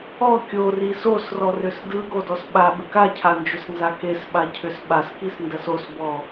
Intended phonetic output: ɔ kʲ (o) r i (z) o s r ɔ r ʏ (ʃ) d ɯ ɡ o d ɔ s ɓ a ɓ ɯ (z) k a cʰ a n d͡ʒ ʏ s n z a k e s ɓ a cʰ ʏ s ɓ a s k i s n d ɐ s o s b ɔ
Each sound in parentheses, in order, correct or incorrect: correct, incorrect, incorrect, incorrect

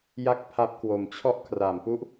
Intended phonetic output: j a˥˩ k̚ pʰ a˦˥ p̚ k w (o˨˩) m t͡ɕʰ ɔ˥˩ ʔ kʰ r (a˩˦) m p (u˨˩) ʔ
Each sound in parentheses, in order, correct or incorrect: correct, incorrect, incorrect

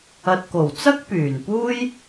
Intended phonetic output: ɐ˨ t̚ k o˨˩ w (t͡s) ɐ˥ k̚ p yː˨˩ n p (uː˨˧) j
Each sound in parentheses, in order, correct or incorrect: correct, incorrect

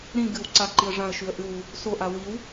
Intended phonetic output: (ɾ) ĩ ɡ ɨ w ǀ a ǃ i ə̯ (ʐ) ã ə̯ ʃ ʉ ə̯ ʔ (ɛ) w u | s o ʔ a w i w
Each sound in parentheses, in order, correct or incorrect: correct, correct, incorrect

